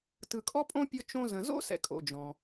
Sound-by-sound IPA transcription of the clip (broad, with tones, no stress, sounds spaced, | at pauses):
t ɯ˨ kʼ ɔ˥ pʼ õ˥ pʲ ɔ˦ t͡ʃ õ˦ z ə̃˨ z o̰˥ s ɛ̰˨ kʼ o̰˩ d͡ʒ ɔ̃˩